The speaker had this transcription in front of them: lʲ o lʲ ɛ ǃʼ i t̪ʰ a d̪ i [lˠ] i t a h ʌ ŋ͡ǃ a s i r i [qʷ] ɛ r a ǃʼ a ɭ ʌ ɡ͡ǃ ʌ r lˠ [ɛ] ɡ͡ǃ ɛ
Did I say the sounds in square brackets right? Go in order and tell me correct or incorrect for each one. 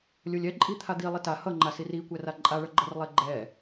correct, incorrect: kʷ, correct

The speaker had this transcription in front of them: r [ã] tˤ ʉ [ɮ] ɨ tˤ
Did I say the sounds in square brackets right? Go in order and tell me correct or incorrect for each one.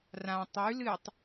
correct, incorrect: l

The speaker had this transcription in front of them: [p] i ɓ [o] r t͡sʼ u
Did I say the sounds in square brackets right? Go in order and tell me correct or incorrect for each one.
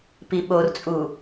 correct, correct

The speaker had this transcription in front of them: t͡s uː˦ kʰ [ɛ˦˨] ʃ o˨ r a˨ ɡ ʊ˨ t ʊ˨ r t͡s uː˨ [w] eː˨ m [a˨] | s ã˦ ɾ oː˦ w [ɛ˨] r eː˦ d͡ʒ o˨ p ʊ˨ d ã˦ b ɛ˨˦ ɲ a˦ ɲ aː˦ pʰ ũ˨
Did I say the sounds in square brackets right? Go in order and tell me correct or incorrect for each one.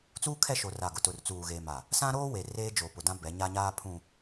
correct, incorrect: ɣ, correct, incorrect: e˨

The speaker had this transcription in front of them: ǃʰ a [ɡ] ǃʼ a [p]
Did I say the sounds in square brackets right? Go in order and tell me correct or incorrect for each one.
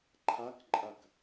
incorrect: k, incorrect: k

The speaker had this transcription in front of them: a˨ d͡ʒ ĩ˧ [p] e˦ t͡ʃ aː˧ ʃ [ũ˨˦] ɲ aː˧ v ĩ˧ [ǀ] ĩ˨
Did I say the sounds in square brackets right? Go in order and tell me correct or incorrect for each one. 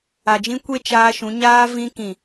incorrect: kʷ, correct, incorrect: k

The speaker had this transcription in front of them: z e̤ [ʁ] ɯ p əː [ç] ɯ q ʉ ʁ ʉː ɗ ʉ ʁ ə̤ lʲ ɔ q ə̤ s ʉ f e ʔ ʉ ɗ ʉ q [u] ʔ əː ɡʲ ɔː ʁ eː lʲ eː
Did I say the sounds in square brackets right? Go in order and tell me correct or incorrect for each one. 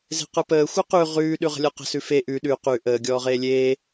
incorrect: q, incorrect: xʷ, incorrect: ʉ

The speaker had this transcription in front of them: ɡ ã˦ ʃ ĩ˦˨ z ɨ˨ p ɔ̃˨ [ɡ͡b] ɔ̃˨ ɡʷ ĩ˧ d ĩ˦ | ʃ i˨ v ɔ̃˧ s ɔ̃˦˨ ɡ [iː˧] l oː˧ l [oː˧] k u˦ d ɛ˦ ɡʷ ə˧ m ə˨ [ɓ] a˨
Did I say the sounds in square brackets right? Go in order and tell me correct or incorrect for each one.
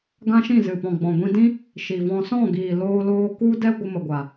correct, incorrect: iː˨, correct, incorrect: ɡʷ

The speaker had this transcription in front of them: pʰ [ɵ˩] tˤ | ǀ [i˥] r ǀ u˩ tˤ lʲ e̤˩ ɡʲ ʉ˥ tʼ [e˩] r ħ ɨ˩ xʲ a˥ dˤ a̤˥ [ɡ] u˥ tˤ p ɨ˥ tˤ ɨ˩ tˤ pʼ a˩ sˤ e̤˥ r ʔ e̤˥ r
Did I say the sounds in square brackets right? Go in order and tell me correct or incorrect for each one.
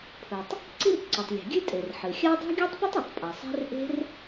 correct, correct, correct, incorrect: ɡʲ

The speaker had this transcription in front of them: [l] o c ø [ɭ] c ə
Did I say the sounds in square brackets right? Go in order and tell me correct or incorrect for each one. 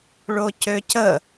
incorrect: ɭ, incorrect: none

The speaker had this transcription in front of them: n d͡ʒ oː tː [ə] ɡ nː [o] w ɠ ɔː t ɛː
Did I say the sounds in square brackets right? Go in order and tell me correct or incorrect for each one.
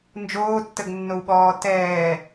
correct, correct

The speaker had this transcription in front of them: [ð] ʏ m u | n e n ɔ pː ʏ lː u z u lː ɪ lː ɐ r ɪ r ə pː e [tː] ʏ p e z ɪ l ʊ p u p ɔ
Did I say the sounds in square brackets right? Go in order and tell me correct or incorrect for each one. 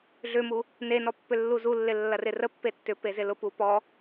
incorrect: ɮ, correct

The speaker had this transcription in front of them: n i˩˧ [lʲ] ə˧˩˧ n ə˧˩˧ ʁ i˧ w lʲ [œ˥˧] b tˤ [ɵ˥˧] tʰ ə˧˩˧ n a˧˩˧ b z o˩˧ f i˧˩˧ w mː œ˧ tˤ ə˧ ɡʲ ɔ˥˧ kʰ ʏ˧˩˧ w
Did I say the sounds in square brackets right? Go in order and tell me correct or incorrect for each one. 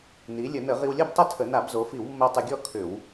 correct, correct, incorrect: ʊ˥˧

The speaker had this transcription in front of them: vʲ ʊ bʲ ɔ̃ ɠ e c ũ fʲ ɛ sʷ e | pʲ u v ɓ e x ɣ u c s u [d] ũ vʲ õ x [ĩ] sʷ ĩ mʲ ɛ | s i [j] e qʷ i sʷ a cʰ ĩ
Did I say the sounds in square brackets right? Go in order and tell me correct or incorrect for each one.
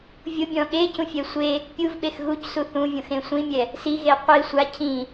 incorrect: θ, incorrect: ẽ, incorrect: ɣ

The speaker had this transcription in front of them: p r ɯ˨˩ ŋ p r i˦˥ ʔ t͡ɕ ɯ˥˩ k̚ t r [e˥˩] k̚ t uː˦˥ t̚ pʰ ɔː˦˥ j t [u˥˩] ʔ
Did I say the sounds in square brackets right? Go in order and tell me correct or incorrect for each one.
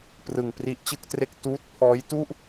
correct, correct

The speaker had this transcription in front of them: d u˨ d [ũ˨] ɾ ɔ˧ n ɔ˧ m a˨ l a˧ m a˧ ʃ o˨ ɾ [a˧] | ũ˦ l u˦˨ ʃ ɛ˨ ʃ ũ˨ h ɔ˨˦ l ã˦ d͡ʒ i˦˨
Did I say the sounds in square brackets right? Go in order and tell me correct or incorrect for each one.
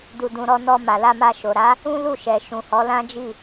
correct, incorrect: a˨˦

